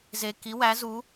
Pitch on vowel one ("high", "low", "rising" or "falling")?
high